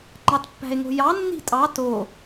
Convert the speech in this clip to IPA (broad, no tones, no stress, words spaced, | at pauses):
ŋ͡ǃɑtpːæ̤e̯ŋo̤jɑ nːi̤tʼɑ to